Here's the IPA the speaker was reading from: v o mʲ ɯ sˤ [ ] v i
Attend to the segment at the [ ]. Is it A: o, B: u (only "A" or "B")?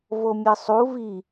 B